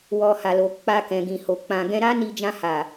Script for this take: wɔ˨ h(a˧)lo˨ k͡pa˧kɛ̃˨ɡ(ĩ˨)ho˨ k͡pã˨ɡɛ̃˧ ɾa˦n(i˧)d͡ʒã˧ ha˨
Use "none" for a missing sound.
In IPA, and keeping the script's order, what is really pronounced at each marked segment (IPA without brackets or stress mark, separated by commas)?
a˨, ĩ˨, i˧